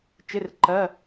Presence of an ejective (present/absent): absent